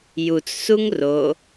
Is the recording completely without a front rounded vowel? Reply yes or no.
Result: yes